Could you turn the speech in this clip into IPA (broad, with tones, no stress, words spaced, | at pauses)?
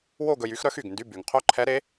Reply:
wo˥˧ ɡɵ˧jy˧˥xɾœ˥x y˨˩ɡndy˧˥˧ by˨˩ŋ qʰœ˥ǃʰɛ˧˥ɾe˧˥